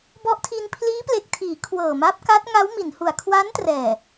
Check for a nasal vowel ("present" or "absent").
absent